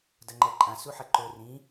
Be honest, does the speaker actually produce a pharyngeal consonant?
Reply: yes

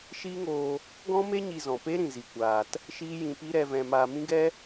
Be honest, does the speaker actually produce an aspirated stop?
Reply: no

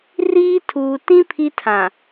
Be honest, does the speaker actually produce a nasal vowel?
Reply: yes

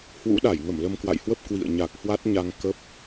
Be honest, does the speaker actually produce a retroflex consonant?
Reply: no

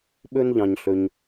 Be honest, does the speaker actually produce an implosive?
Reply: yes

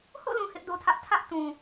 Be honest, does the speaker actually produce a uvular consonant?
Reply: no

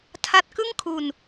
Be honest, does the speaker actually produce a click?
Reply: no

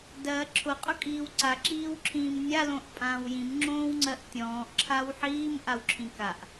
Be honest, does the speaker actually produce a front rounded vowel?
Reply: no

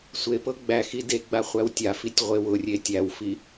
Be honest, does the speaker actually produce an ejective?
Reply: no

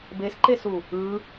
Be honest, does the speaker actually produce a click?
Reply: yes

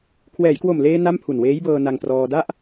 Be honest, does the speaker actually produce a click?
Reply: no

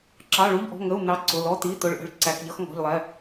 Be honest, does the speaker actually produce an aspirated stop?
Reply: no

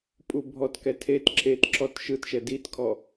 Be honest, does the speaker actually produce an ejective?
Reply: yes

